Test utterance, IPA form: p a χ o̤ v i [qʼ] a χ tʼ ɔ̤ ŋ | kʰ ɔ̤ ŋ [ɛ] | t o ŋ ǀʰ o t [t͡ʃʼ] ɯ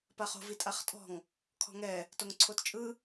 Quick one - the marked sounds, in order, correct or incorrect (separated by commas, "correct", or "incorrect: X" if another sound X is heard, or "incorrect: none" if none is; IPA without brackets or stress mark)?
incorrect: tʼ, correct, correct